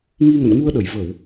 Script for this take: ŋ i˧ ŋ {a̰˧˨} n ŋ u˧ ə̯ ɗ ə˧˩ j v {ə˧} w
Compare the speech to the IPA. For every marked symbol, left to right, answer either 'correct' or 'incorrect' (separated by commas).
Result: incorrect, incorrect